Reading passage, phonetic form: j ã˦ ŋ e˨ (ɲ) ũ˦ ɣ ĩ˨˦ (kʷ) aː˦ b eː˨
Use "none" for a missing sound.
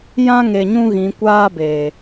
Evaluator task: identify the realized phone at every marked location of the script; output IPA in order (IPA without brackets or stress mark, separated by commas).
ɲ, kʷ